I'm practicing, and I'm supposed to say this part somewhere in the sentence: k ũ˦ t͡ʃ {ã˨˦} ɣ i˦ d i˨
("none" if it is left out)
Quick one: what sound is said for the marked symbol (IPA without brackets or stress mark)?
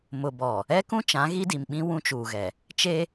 ã˨˦